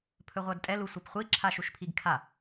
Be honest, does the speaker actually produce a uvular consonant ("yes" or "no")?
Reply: yes